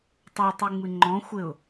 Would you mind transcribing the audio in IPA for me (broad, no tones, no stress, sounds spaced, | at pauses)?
tˤ o tˤ ɨ ŋ͡m ɨ ŋ͡ǃ ɔ̃ xʷ ɘ ʊ̯